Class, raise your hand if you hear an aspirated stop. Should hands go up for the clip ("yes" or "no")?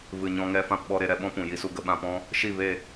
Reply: no